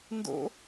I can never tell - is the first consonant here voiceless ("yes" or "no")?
no